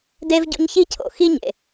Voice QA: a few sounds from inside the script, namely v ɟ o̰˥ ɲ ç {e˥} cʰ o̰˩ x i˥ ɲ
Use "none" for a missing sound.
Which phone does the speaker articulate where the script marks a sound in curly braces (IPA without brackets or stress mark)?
i˥